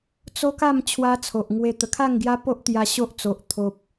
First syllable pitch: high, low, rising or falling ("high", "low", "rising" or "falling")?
high